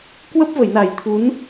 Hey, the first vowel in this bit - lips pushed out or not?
no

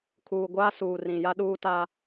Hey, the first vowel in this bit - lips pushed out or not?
yes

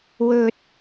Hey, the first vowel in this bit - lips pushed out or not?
yes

